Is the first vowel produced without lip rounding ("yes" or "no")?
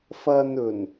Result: yes